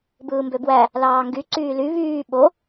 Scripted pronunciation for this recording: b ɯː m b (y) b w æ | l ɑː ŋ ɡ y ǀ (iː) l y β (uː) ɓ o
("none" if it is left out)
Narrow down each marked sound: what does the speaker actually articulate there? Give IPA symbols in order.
ø, yː, yː

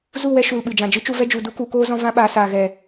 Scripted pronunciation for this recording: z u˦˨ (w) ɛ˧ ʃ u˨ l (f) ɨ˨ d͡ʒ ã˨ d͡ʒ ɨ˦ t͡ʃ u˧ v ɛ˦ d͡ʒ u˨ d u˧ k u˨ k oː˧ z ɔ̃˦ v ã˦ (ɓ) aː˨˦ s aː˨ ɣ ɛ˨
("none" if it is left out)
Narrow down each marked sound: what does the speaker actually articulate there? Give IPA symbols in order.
w, ɓ, ɓ

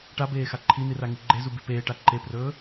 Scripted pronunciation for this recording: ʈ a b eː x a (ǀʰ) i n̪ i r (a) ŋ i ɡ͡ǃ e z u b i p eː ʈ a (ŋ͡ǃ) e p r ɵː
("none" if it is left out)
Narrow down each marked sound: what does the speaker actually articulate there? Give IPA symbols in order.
ǃʰ, a, ǃ

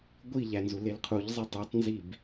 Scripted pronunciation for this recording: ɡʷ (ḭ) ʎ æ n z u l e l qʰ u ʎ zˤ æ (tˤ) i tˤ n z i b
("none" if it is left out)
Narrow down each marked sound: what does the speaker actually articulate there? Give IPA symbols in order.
i, tˤ

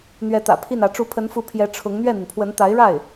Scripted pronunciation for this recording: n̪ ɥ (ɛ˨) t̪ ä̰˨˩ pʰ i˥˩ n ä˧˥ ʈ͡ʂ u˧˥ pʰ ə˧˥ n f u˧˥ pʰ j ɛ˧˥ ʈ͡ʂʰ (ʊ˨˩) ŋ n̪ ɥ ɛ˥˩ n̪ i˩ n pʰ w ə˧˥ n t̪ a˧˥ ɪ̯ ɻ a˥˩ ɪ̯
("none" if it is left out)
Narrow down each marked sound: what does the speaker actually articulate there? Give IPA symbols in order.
ɛ˧˥, ʊ˧˥

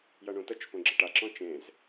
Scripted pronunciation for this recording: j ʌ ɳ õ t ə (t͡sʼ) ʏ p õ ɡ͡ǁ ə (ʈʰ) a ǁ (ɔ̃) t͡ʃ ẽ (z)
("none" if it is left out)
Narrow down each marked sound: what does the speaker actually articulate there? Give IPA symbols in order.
t͡ʃ, ʈ, ɔ̃, z

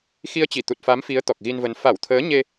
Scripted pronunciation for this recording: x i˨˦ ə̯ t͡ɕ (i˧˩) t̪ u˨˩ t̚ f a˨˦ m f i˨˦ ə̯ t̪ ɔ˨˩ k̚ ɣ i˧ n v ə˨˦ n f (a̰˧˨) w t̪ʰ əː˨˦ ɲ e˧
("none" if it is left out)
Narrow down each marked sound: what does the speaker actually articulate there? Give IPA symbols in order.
i˧˩, a˧˩

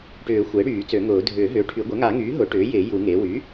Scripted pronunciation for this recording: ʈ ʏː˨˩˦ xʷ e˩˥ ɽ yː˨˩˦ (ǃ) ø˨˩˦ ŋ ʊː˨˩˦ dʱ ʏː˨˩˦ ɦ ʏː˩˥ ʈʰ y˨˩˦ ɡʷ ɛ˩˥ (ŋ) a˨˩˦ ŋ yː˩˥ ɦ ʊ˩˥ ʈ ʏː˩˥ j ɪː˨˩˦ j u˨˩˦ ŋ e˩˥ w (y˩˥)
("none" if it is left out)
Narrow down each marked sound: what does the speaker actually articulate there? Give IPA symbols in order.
t͡s, ŋ, y˩˥

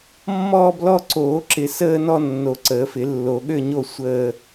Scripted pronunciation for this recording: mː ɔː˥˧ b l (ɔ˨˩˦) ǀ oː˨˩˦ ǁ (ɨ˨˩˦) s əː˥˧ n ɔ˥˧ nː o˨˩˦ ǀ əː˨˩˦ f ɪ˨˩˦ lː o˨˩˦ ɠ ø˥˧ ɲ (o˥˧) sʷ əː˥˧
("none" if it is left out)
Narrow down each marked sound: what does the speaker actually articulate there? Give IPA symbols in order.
ɔ˥˧, ɪ˨˩˦, o˥˧

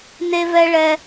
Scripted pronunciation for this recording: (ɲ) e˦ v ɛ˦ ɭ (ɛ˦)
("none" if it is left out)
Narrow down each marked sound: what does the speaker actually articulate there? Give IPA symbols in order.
n, ɛ˦

